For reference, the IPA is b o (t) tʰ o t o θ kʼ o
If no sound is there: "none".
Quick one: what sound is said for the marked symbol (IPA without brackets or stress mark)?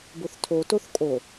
θ